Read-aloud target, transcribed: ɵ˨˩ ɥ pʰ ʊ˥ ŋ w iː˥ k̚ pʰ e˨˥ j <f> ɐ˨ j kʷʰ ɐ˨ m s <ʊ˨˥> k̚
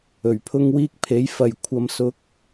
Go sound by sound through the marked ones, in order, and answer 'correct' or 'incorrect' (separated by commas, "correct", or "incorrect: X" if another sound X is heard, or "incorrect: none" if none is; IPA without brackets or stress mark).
correct, correct